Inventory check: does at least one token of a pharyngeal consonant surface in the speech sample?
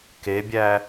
no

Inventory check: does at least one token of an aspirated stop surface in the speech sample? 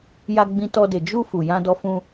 no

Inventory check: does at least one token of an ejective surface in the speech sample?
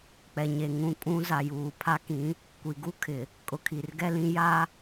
yes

